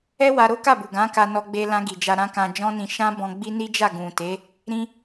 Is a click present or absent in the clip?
absent